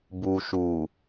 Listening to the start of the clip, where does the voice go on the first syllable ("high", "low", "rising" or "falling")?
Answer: low